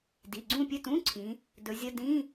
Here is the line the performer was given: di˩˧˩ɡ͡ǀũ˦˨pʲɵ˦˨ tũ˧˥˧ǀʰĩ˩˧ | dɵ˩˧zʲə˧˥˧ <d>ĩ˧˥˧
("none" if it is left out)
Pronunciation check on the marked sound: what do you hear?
d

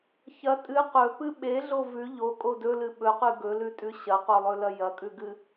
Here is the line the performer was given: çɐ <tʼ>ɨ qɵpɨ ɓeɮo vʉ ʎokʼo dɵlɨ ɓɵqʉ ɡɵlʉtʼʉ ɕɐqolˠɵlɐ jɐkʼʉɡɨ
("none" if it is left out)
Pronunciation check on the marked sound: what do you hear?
tʼ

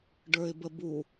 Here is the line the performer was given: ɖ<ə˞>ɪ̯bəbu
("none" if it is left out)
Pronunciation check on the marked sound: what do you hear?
ə˞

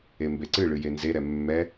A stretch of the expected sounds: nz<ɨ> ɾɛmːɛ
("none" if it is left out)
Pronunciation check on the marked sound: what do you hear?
e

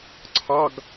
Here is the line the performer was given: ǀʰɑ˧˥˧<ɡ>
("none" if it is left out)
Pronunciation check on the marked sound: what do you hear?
ɡ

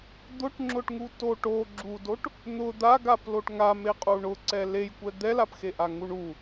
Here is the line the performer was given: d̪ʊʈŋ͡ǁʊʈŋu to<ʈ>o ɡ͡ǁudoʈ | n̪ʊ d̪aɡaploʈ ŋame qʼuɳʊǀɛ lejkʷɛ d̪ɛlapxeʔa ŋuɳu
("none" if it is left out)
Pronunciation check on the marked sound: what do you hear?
ʈ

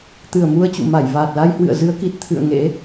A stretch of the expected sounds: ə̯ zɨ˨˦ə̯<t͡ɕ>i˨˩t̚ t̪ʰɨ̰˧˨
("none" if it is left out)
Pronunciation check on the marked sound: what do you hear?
k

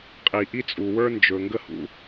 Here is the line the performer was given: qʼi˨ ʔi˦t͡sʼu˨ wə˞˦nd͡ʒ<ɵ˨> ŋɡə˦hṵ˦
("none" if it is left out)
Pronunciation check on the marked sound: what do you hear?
ɵ˨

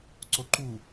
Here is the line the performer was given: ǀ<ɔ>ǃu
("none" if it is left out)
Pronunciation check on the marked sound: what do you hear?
o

